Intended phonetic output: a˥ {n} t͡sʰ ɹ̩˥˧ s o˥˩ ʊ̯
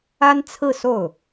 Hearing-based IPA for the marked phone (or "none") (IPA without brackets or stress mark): n